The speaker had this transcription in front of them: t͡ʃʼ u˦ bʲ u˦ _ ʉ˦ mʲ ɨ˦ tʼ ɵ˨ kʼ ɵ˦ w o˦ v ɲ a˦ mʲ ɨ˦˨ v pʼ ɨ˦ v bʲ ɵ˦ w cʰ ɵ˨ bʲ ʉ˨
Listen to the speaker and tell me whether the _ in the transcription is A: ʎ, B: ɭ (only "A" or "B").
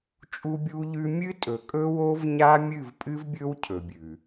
A